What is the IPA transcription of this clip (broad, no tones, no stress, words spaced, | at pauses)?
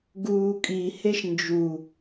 ɡuːkʼiheʃ nd͡ʒu